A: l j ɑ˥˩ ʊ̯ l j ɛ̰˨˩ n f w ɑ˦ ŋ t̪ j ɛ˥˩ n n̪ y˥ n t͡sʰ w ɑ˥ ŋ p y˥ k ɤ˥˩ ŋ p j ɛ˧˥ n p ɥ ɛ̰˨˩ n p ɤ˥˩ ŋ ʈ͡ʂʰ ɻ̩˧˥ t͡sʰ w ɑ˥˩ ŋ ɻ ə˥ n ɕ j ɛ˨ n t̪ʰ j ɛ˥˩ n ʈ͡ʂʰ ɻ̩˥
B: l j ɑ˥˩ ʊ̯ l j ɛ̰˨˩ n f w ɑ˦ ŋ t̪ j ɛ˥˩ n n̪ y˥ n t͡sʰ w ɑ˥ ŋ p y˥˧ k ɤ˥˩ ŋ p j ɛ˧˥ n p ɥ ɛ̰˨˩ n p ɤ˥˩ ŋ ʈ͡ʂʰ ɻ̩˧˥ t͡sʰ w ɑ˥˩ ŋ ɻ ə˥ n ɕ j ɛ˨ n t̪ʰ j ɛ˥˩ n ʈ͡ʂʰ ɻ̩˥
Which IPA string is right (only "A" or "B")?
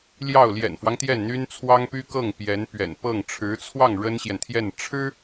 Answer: A